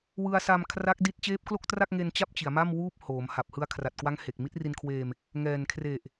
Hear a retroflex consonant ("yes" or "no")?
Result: no